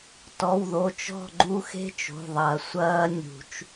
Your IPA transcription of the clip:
t ɔ˩˧˩ w ð o˩˧˩ t͡ʃ ɔ̤˦˨ ɡ͡ǃ u˥ x e̤˥ t͡ʃ o̤˩˧˩ ðˤ ɐ˨˩˦ sʷ ɐː˥ nʲ ṳ˨˩˦ t͡ʃ

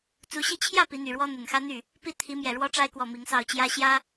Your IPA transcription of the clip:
t͡s u˧˥ ɕ i˥˧ t͡ɕʰ j ä˥˩ p i˧˥ n̪ y˨˩ ɻ w ɔ˥ n̪ ə˨˩ n x ä˥ n̪ y˥˩ | p i˥˩ t̪ʰ i˧˥ m j ɛ˨˩ ɻ w ɔ˥ ʈ͡ʂ a˥ ɪ̯ k w ɔ˥˩ m i˧˥ ŋ s ɑ˥˩ ʊ̯ t͡ɕ j ä˥ ɕ j ä˥

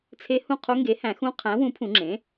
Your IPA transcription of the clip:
t͡sʰ e˧˥ h ũ˦˨ qʰ o˧˥ ŋ ɡ e˩˥ h æ̃˨˩˦ x ũ˧˥ qʰ æ̃˩˥ w ũ˩˥ pʰ ũ˨˩˦ ŋ͡ǁ ẽ˩˥

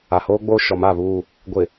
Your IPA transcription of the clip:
a˨ h oː˦ ɡ͡b oː˦ ʃ ɔ˨˦ m a˦˨ β uː˦˨ | ɡʷ ɪ˨

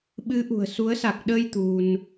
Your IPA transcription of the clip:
ɓ ɨ˨˦ ʔ ṳ˨˩ ə̯ s u˨˦ ə̯ s a˨˩ k̚ ɗ əː˧ j t̪ u˧ n

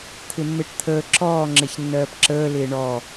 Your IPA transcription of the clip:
t̪ʰ ɪ mː e ʈ t̪ʰ əː ǁ ɔː ŋ͡ǁ e ç nː ɜː p ǁ əː l ɪː ɳ ɔ

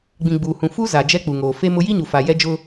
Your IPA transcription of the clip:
ɡ͡b ĩ˨ ɡ͡b uː˨ h ũ˨ f u˦ z a˨ d͡ʒ ɛ˦ k͡p u˨ ŋ oː˨ f e˦ m ʊ˦ j i˦ ɲ u˨ f a˨ j ɛ˦ d͡ʒ ʊ˦

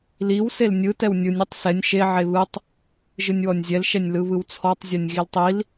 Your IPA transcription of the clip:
l i w s e l nʲ ɯ t ɛ w nʲ ɯ nʲ i tˤ s ɛ nʲ ʃ e ʕ e β ɯ tˤ | ʒ ɯ nʲ w ɔ nʲ zʲ ɛ l ʃ ɛ nʲ l ɯ β ɯ w t͡sʰ ɔ tˤ zʲ ɔ nʲ ɣ i l tˤ i l

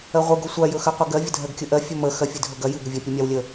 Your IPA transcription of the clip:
ɜ ʁʷ ɨ ɡ ɵ sʷ a j ɵ x ɜ qʷ ɛ ɡ ɜ vʲ ə dʱ ɜ ɡ kʲ ɵ ʔ ɜ fʲ ɵ m ə x ɜ fʲ ɨ dʱ ɵ ɡ ɐ j ɨ ɡ ə vʲ ɛ pʲ ɨ mʲ a w lʲ ə

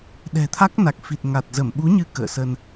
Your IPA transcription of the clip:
ɗ ɛ̤˨˩ t̪ʰ a˦˥ k̚ n a˨˩ k̚ f i˨˩ t̚ ŋ a˨˩ t̚ z ə˧˩ m ɓ u˨˦ ɲ ɨ˨˦ k ə̰ː˧˨ s ə˧ n

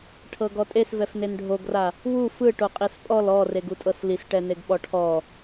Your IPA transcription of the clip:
ʈʰ ɤ ɡ ɔ tʼ e s v ɛ f n e n ɖʱ o ɡ r a | w u f ɯ ʈ o qʼ i s pʼ ɔ l ɔ r e ɡ u tʼ ɤ s l i s ʈ ɛ n e ɡ ɓ ɔ ʈʰ ɔ

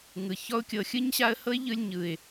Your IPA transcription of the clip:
ŋ ɯ˨ ç ɔ˦ ʊ̯ kʲ ɤ˧ xʲ ɯ˦ ɲ ɕ a˦ ə̯ h ɤ˦ ɪ̯ ʎ ɯ˧ lʲ ɲ ɯ˨ ɪ̯

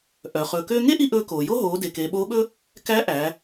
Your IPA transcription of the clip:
ʔ œ˩ χ ɵː˩ k øː˧ ŋ e˥ ʔ i˧ ʔ ɵː˧ k oː˩ j o˥ ɦ oː˩˧ d e˩ k eː˩˧ ɓ oː˧˥ ɓ ɵ˥ | k æ˧˥ ʔ æ˩˧

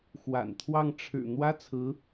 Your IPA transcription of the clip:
x w a̰˨˩ n t̪ʰ w ɑ˥˩ ŋ ʈ͡ʂʰ ɻ̩˨˩ n̪ w ä˥ t͡sʰ ɹ̩˧˥

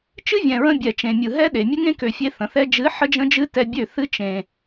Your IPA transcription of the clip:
t͡ʃ ɨ˦ vʲ ɛ̃˨ ɹ ə̃˧ bʲ ɛ˨ t͡ʃ ẽ˨ mʲ ɯ˨ ɦ ɛ˦ ɗ e˨ mʲ ə˦ ŋ ẽ˦ k ø˨ fʲ e˧ θ ə̃˨ θ ɛ˦ d͡ʒ ɨ˨˦ ħ ə˦ d͡ʒ ə̃˦ d͡ʒ ɨ˦ t ɛ˧ bʲ ø˦˨ θ ɨ˦ t͡ʃ ẽ˧

